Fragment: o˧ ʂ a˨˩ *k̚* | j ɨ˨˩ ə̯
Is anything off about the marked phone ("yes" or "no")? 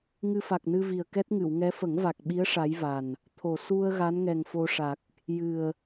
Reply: no